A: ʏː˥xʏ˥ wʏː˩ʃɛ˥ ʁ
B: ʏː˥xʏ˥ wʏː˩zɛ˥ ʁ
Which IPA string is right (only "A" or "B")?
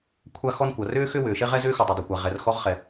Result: A